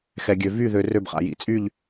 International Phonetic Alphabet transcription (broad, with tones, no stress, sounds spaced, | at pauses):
x ɛ˨ ɡʲ ø˨ v y˥˨ ð ø˨ r ø˥˨ b χ a̰˨ j ḭ˨ t͡sʼ y˥˨ ʎ